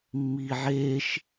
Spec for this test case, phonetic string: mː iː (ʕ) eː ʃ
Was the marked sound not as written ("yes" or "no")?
no